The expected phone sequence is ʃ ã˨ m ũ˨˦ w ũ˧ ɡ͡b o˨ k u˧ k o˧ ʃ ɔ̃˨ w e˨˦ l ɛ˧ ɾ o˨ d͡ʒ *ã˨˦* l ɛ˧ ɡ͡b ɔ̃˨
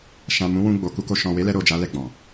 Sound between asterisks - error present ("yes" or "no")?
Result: yes